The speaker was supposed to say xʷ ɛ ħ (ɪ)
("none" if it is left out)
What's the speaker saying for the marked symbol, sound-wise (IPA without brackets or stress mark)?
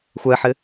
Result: ɪ